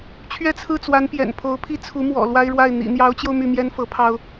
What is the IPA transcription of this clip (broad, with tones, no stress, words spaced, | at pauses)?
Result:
t͡ɕʰɥɛ˥˧t͡sʰɹ̩˥˩t͡swa˧˥n pjɛ̰˨˩npʰo˧˥ʊ̯ pʰi˥˩t͡sʰu˧˥ mwɔ̰˨˩lwa˥ɪ̯ɻwa˥˩ɪ̯ n̪ḭ˨˩n̪jɑ˧˥ʊ̯t͡ɕjo˧ʊ̯ my˥˩mjɛ˥nfɤ˧˥pʰɑ˥ʊ̯